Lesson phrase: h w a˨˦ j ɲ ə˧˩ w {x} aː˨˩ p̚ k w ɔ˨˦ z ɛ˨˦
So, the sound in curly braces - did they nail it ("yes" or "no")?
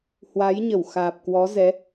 yes